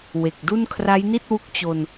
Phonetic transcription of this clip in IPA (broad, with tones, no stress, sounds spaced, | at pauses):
w e˨˩ k̚ d u˥˩ n kʰ r a˦˥ j n i˥˩ t̚ w u˦˥ k̚ t͡ɕ o˧ n